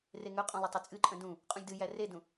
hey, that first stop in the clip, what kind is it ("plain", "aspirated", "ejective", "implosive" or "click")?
ejective